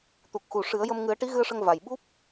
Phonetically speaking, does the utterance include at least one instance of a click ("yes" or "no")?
no